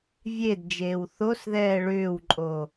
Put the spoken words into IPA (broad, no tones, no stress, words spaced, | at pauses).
vʲed d͡ʒeːwθosðɛː ɭʏːwǃʼo